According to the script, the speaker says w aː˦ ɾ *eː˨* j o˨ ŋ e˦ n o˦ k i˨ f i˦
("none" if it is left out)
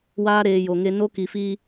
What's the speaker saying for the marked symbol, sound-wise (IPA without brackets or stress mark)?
eː˨